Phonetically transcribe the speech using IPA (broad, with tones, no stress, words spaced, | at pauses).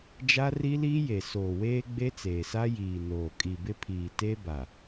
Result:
d͡ʒa˦ri˦liː˦ je˨soː˨ weː˦ɡ͡be˦t͡seː˨sa˦ jiː˨ noː˨ kʼi˨bɪ˦pʰiː˨ te˦ ba˨